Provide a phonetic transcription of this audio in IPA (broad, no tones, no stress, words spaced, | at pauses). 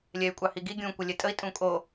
lʲɛy̯kʷʼɑhiɡi ɡʲũ kʷəlʲɛtʼəi̯ tʼũkʼo